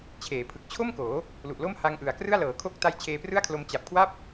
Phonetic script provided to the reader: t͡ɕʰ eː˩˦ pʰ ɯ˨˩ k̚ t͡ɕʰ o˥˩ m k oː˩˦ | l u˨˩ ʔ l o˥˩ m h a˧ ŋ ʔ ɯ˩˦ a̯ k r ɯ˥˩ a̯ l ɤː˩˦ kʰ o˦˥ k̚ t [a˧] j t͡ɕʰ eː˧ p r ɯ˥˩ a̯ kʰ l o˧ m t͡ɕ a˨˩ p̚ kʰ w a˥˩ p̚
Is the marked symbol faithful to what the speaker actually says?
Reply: yes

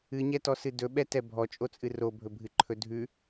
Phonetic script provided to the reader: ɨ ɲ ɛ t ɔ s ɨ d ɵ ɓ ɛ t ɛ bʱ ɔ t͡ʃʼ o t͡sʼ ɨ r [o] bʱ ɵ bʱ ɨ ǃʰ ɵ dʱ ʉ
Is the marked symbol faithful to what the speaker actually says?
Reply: yes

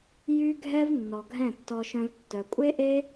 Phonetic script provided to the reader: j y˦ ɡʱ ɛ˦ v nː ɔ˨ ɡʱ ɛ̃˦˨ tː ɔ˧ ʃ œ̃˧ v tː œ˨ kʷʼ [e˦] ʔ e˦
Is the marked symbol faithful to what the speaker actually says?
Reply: yes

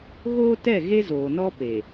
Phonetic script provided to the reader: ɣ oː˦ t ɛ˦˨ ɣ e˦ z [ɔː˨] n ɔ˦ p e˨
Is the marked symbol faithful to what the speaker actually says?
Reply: no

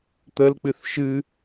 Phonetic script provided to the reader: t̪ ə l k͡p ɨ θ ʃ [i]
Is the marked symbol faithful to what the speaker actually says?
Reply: no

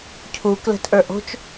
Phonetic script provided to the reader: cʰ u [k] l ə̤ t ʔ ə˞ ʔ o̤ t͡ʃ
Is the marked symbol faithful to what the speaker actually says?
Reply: yes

